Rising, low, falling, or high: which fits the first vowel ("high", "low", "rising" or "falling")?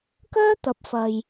high